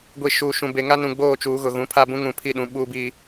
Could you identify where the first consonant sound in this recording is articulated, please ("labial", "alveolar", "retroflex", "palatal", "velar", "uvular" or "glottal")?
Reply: velar